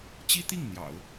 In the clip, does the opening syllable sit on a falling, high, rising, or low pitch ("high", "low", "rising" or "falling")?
high